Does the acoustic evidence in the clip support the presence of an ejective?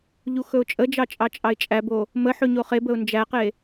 yes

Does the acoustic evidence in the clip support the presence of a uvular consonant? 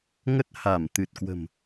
no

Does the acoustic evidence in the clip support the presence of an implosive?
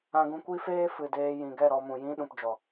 yes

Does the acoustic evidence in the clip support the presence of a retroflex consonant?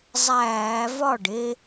yes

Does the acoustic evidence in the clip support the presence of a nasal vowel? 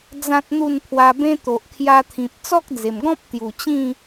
yes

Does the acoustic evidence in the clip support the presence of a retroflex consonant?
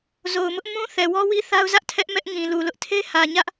no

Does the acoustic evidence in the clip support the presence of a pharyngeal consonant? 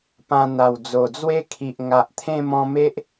no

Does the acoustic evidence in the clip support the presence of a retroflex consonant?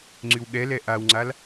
no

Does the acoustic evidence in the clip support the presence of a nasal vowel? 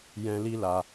yes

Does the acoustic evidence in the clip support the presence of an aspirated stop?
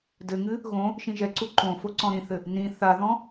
no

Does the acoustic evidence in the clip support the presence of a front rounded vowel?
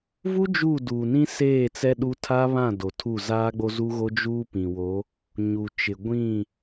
no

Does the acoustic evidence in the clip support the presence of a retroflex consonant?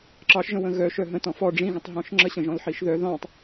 yes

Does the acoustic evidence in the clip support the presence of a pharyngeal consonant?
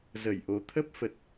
no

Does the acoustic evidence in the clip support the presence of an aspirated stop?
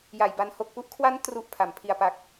yes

